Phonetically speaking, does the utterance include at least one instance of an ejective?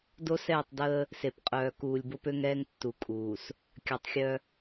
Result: yes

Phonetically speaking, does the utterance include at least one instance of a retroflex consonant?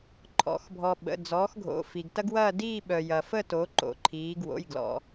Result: no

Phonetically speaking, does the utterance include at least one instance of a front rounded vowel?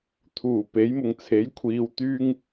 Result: yes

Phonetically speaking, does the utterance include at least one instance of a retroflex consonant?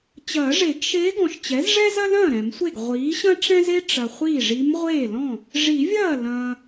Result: yes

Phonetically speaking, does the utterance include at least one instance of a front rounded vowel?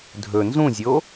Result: no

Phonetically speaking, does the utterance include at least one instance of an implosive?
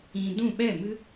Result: yes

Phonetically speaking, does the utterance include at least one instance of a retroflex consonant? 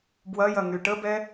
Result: yes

